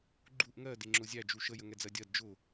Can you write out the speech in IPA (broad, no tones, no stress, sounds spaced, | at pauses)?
ɡ͡ǃ u ʔ ŋ ɜ d ɪ ŋ͡ǁ ʊ zʲ æ d͡ʒ u ʃ ə j ə ŋ ɛ d͡z ɜ dʲ ɜ d d͡ʒ ʊ